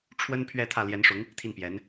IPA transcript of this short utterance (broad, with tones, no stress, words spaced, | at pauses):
ʈ͡ʂʰwə˥n pʰɥɛ˥˧t̪ʰä˥˩ ljɛ˧˥nʂʊ˧˥ŋ | t̪ʰi˥˩npjɛ˧˥n